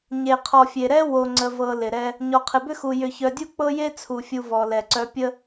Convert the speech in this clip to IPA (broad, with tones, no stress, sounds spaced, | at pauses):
ɲ e˨ qʰ ɔ˨ fʲ e˨ ɾ ɛ˦ w o˨ ŋ͡ǀ ə˨ v ɤ˨ l ɪ˨ ɾ ɛ˦ | ɲ ɔ˨ qʰ ɪ˨ b ʏ˦ x u˨ j ʏ˨ ç œ˨ dʲ u˦ k͡p ɤ˦ j e˦ t͡sʰ u˨ fʲ u˨ v ɔ˨ l ɛ˨ ǀ œ˦ pʲ ə˦